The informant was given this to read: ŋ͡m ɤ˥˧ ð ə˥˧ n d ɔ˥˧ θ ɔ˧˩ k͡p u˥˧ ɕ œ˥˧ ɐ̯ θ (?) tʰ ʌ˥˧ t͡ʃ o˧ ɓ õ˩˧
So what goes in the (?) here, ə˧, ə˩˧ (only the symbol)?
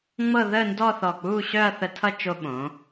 ə˧